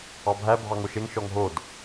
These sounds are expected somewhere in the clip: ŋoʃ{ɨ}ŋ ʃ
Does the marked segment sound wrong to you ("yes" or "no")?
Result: yes